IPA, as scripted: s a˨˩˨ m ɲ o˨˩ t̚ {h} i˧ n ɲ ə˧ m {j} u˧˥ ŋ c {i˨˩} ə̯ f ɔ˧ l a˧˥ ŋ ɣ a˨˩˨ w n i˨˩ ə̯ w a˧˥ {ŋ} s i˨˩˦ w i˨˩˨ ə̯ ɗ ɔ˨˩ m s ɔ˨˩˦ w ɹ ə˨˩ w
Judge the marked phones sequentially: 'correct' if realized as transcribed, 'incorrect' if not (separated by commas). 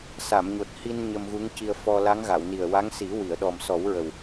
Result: correct, incorrect, incorrect, correct